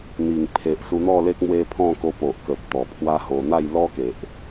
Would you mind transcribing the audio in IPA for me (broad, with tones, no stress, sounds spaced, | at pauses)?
n̪ i˨˩ ŋ pʰ e˨ ʔ s u˧ n̪ ɔ˥˧ l e˦ k̚ m w e˧ pʰ ɔ̃˥˧ k o˧ p o˨ ʔ k ə˨ p̚ t̪ ɔ˨˩ pʰ w a˦ h o˧ n̪ a˥˧ j l ɔ˦ k e˨ ʔ